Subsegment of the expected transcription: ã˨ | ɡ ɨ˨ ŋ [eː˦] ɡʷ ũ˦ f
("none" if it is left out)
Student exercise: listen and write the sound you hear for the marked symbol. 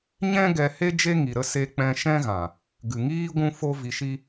iː˦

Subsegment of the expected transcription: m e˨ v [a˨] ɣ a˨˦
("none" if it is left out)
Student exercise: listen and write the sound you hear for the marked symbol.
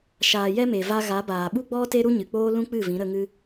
a˧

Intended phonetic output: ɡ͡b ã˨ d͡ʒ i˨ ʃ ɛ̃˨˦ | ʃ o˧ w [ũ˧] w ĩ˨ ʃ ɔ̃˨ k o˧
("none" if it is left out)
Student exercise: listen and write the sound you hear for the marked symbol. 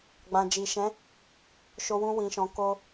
ũ˧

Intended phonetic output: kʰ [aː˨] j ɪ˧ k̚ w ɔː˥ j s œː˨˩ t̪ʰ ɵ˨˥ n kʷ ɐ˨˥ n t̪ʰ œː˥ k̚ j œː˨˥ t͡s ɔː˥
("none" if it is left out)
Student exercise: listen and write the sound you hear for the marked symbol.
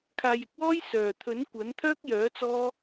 aː˨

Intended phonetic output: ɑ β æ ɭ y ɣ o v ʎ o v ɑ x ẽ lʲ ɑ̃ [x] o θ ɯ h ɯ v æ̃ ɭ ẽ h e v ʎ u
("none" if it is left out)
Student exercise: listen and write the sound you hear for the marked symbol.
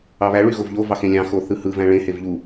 x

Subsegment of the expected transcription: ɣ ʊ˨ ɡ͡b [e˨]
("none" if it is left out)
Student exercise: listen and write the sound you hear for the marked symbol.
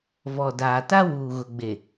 e˨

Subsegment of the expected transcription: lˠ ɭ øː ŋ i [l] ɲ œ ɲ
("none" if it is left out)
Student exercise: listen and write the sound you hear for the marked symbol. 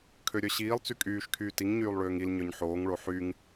l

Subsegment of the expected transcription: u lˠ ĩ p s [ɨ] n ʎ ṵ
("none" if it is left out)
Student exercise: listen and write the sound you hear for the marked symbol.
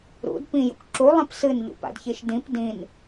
ɨ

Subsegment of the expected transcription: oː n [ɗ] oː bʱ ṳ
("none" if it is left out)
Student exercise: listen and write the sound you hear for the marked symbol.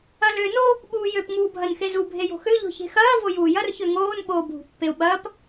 ɓ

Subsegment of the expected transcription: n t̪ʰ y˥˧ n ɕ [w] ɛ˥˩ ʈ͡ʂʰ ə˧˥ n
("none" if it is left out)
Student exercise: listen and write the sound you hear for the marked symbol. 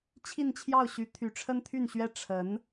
ɥ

